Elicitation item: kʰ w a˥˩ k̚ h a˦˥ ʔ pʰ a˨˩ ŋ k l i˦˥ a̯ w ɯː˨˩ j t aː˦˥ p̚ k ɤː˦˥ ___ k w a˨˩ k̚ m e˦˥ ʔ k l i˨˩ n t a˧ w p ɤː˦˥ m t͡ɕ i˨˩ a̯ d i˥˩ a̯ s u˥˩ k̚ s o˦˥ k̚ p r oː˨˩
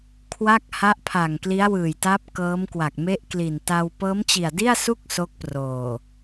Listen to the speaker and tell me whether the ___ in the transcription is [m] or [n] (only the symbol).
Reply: m